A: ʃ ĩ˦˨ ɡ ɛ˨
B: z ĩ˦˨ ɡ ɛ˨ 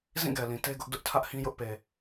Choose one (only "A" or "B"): B